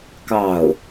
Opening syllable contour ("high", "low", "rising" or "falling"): falling